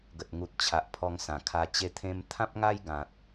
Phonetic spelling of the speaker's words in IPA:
ɡ ə˨ t̚ ŋ u˨ t̚ t͡ɕʰ a˨ ʔ pʰ ɔ˧ ŋ s ã˨˩ kʰ a˧ t͡ɕ e˧ t̪ʰ ẽ˧ m t̪ʰ ã˦ p̚ ŋ a˦ j ɡ ã˨ t̚

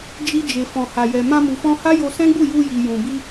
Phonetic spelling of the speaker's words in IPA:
d͡ʒ i˧ d͡ʒ e˨ f ɔ̃˨ h a˨ j ɛ˨ m ã˧ m u˨ f ɔ̃˧ h a˦ j o˧ s ɛ̃˦ ɡ͡b u˦˨ j u˧ j i˨ j ũ˨ b i˧

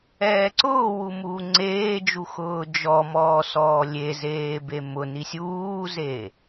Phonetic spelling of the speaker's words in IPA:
ɛː ǀ ʊː w u m uː ŋ͡ǀ eː d͡ʒ u x ʊː d͡ʒ ɔ m ɔː s ɔː lʲ e z eː b e m ʊ n i sʲ uː z e

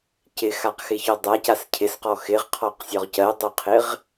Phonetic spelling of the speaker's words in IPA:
c ɪ x a q x ɪ ç ɔ dˤ a c a s cʰ ɪ s q ɔ x ɪ ʁ qʰ ɔ q sʲ ɔ ʁ c ɜ dˤ o qʰ ɪ ʁ

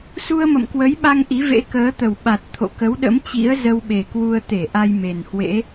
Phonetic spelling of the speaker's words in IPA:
s u˧ ə̯ m ə̰˧˨ m k w ə˨˦ j ɓ a˧ ŋ ʔ i˨˦ v ḛ˧˥ k əː˨˦ t̪ ə˨˩ w ɓ a˨˩ t̚ t̪ʰ o̰˧˨ k ə˨˦ w ɗ ə̰˧˥ m t͡ɕ ḭ˧˥ ə̯ z ə˧ w ɓ e˨˩ k w u˧ ə̯ t̪ e˧˩ ʔ a˧ j m e˨˩ n h w ḛ˧˥

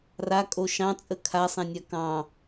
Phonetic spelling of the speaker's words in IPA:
r a kʼ o ʃ ɑ̃ t͡sʼ ə kʰ a sˤ ɛ̃ nʲ a k ɑ̃

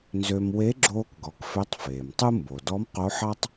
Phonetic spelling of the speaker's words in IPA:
n z ø˧ m w e˧˥ ɡ͡ǁ oː˧ k ɡ ɔ˩˧ k f ø˧˥ tˤ f eː˩ m tˤ u˥ m b o˩ d ɔ˧˥ m q o˧˥ ħ ɑ˥ tˤ

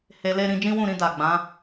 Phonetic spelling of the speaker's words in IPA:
h e˧ l e˦ ɾ ĩ˦ d͡ʒ ĩ˦ w ũ˦˨ ɾ ĩ˧ d a˨ ɡ͡b ã˨˦

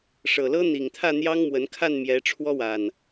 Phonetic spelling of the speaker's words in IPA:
ʂ ɤ˨˩ l ɤ˦ n̪ i˨˩ ŋ t̪ʰ ä˥˨ n̪ j ɑ˦ ŋ m w ə˨˦ n kʰ a˥˨ n m j ɛ˨˦ ʈ͡ʂʰ w ɔ˦ w a˨˩ n

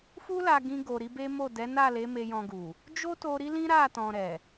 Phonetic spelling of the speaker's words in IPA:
f u˦ l a˧ ɡ ĩ˧ ɡ o˨ ɾ i˨˦ b e˦ m o˦˨ d ɛ˨˦ n a˦˨ l e˨˦ m e˧ j ɔ̃˧ ɡ u˨ | d͡ʒ o˦ t o˧ ɾ i˦ l ĩ˦ ɾ a˦˨ t ɔ̃˨ ɾ ɛ˨

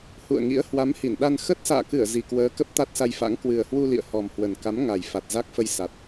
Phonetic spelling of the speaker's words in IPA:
h ṵ˧˨ ə̯ ŋ ḭ˧˥ ə̯ h w a˨˦ m h i˧˩ n ɗ a˧ n x ə˦˥ t̚ s a̰ː˧˨ k ɨ˧˩ ə̯ z i˨˩ k w əː˨˦ k ə˦˥ p̚ t̪ a˦˥ t̚ s a˧ j f a̰˧˥ ŋ k w ɨ˨˩ ə̯ h w u˧ l ḭ˧˨ ə̯ h ɔ˨˩ m h w ə˨˩ n k a˨˦ m ŋ a˨˩ j f a˨˩ t̚ z a˦˥ k̚ f ə˧ j s a˨˩ t̚

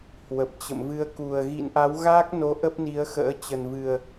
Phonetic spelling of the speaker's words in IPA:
h w ə˨˩ p̚ t͡ɕ ə̰˧˨ m v ɨ˧ ə̯ k u˨˩ ə̯ ɣ ḭ˧˨ n ʔ a˨˦ w ɣ a˦˥ k̚ n o˨˦ ʔ ə˦˥ p̚ n i˨˦ ə̯ x ə̰ː˧˥ t͡ɕ ə˨˩ n v ɨ˨˩ ə̯

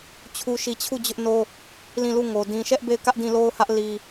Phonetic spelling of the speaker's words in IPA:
t͡ɕʰ u˦ ʃ i˦˨ t͡ɕʰ u˦˨ d͡ʑ ʊ˦ ʔ n o˦ | l ĩ˦˨ l u˦˨ ŋ o˨ d ĩ˨ ʃ ɛ˦ ʔ b e˦˨ ɪ̯ k ä˦ ʔ d ĩ˦˨ l o˦ ʊ̯ h ä˦ ʔ l i˦

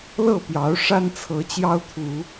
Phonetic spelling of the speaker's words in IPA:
l ɤ˥˨ p j ɑ˨˦ ʊ̯ ʂ a˦ n t͡sʰ ɤ˨˦ t͡ɕ j ɑ˦ ʊ̯ t̪ʰ u˨˦

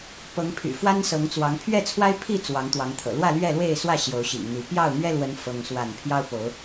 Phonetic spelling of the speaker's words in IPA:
p ɤ˨˦ ŋ pʰ y̰˨˩ f w a˦ n s ɤ˨˦ ŋ t͡s w ɑ˨˦ ŋ pʰ ɥ ɛ˥˨ t͡sʰ w a˦ ɪ̯ pʰ i˥˨ t͡s w ɑ˨˦ ŋ t̪ w ɑ˨˦ ŋ t̪ʰ ɤ̰˨˩ l w ä˥˨ l ɥ ɛ˥˨ l w e˥˨ ɪ̯ s w ä˥˨ ɕ j o˨˦ ʊ̯ ɕ ḭ˨˩ ŋ n̪ i˨˦ p j ɑ˥˨ ʊ̯ n̪ ɥ ɛ˦ l w ə˨˦ n f ɤ˦ ŋ s w a˥˨ n pʰ j ɑ˦ ʊ̯ p o˨˦ ʊ̯

